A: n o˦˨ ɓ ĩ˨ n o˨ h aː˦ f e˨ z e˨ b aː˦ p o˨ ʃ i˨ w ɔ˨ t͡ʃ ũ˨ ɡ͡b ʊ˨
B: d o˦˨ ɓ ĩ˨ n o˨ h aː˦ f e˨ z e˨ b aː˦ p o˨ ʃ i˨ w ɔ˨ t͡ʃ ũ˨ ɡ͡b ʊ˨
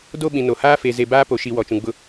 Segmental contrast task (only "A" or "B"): B